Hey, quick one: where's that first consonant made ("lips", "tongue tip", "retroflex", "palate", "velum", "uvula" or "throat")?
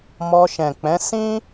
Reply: lips